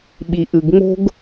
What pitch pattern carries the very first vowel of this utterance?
low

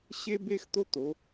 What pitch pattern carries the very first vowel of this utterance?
high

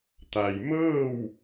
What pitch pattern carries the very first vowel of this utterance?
low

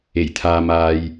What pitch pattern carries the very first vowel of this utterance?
low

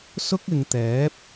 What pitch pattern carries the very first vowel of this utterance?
high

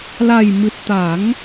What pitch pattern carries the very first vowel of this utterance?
low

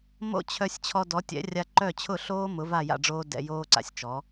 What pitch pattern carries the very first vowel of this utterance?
falling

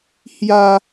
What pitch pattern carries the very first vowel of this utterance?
high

